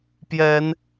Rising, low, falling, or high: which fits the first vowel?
rising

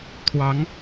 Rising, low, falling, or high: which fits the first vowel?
rising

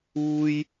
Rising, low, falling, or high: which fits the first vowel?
high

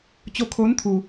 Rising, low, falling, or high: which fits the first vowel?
rising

